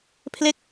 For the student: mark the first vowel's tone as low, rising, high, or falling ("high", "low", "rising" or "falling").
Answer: falling